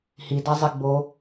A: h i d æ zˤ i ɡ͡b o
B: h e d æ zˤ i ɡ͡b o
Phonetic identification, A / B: A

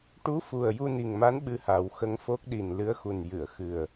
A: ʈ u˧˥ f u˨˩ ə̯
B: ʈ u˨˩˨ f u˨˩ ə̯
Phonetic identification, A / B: A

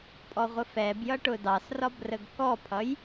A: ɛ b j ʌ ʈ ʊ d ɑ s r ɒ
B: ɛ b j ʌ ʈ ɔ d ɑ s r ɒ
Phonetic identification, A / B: A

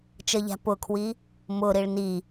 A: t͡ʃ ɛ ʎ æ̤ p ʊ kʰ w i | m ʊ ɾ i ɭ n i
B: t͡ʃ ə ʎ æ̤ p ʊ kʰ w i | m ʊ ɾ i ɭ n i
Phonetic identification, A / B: B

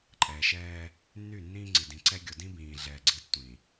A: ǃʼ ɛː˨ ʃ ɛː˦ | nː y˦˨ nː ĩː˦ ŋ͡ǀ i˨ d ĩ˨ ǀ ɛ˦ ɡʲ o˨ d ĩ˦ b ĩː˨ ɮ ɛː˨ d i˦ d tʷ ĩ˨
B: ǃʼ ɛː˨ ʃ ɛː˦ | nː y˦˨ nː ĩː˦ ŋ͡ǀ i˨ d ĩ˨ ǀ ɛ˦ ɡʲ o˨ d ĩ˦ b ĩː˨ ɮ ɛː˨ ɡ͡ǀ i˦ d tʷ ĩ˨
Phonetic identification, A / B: B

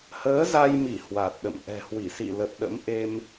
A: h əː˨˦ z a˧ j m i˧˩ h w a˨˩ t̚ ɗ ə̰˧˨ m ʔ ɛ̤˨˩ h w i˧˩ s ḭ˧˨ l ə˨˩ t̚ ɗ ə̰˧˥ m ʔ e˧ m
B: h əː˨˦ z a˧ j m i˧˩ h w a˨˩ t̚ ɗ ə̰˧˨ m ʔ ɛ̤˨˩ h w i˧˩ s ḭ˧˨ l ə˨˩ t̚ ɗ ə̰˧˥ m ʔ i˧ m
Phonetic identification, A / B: A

